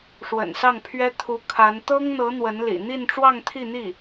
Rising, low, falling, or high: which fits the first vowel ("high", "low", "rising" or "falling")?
low